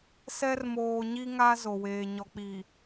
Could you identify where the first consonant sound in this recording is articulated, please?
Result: alveolar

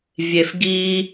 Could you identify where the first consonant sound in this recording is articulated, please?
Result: labial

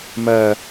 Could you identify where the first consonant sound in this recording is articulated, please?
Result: labial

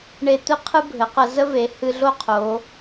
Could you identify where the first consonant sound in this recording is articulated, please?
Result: retroflex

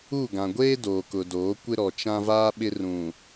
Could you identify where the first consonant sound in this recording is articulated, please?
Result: velar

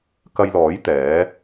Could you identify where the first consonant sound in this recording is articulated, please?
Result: velar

